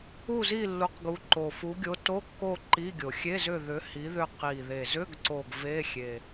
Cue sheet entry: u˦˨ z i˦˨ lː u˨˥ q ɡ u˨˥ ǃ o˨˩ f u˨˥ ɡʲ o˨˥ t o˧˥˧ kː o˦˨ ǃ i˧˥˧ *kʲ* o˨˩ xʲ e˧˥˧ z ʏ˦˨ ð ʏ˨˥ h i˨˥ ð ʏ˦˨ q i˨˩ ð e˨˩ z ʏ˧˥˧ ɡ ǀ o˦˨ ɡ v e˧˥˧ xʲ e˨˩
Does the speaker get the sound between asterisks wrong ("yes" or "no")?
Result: yes